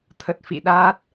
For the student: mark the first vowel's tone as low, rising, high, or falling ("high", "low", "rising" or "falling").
low